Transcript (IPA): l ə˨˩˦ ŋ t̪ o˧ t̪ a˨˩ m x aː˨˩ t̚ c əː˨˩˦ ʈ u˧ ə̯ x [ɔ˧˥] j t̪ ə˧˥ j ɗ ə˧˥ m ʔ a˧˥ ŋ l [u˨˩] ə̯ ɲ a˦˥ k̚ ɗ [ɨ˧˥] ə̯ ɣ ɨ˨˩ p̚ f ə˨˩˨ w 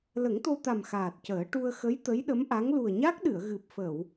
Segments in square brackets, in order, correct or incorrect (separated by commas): incorrect, correct, incorrect